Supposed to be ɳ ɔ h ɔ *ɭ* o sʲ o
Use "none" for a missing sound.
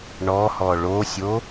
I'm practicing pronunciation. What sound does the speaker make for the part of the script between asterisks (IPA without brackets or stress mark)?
ɭ